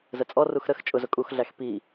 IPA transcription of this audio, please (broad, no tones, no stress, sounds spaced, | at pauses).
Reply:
z ə t͡sʼ ɔ r u x ɾ ə x t͡ʃʼ ʊ z ʊ kʼ u x ɮ æ x p i